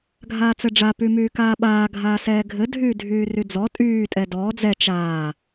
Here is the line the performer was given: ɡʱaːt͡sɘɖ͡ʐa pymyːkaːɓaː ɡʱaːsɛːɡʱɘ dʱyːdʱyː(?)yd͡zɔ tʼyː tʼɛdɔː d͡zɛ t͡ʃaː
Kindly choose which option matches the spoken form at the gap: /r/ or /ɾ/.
r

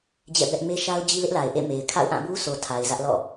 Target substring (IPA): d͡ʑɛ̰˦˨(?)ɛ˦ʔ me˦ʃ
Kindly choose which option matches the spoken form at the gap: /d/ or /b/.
b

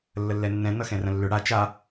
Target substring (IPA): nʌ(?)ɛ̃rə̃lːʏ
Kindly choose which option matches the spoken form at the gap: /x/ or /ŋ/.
x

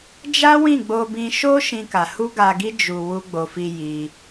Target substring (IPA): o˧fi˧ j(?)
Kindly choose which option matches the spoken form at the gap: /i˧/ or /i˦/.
i˧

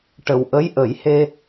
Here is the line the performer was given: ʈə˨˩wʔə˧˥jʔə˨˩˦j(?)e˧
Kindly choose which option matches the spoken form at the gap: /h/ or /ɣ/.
h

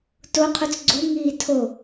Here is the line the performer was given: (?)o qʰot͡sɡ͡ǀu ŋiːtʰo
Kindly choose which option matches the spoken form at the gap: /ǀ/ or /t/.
t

